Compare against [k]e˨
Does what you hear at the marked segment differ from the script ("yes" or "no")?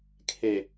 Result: yes